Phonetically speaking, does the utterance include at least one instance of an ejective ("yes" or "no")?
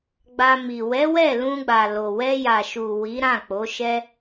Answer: no